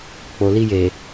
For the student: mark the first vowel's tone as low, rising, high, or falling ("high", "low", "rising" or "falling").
low